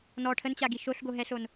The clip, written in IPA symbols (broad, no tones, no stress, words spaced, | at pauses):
nɔ ʈʰənt͡ɕaɡi ʃoɬɡoɦɛɬon